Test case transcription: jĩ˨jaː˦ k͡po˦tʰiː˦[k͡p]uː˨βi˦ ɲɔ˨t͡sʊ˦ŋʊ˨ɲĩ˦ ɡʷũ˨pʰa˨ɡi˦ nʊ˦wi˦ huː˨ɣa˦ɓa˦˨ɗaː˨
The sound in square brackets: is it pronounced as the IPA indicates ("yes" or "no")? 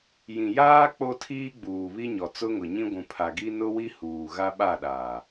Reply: no